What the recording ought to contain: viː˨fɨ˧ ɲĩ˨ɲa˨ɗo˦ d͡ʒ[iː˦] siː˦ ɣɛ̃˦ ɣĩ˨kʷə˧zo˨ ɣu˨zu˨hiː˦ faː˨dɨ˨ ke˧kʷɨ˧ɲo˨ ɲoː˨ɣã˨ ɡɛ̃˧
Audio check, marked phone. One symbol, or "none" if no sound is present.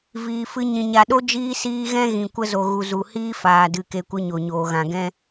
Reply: iː˦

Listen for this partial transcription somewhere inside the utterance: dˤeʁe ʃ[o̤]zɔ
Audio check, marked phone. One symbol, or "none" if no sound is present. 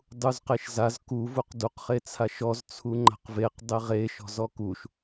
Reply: ɔ̤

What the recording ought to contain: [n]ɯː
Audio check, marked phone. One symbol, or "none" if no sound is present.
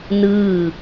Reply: n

